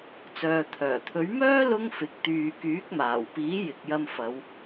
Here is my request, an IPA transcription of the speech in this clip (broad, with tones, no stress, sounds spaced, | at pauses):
t͡s œː˨ t̪ʰ œː˨˩ t̪ʰ ɵ˨˥ ɥ m œː˥ l ʊ˥ ŋ f ɪ˨˥ k̚ t̪ yː˨ k yː˨˥ k̚ m aː˨˩ w p iː˨˥ j ɪ˨ k̚ j ɐ˧ m f ɐ˨˧ w